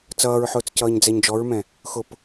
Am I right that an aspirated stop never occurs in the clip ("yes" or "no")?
yes